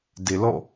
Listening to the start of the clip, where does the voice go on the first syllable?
low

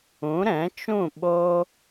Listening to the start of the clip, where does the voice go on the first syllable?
rising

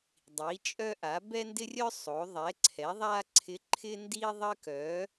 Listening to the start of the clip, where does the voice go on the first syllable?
rising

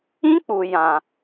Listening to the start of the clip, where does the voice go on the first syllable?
high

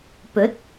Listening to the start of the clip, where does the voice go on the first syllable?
rising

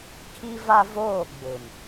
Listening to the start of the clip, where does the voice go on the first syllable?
high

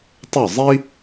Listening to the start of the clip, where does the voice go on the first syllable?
falling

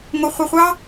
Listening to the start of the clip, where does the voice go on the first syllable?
high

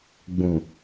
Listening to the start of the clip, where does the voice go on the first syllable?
low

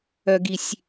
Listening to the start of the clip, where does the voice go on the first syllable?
low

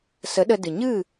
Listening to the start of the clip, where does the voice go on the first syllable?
rising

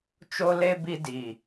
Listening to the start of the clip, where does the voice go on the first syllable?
high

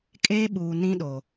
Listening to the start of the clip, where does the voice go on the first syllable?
high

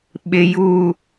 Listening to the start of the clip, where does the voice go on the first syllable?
low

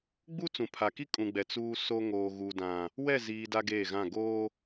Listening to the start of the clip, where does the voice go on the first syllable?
high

